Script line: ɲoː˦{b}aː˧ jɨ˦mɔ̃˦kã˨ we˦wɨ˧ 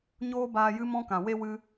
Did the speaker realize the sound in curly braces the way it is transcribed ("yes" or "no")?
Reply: yes